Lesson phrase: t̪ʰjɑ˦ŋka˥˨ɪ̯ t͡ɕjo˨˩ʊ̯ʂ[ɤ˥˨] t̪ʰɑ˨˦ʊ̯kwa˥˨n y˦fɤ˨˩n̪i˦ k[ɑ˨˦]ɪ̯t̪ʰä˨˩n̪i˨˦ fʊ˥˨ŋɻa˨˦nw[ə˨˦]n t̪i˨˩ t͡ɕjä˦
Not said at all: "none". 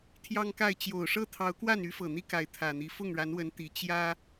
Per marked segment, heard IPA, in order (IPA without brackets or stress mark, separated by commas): ɤ˥˨, a˨˦, ə˨˦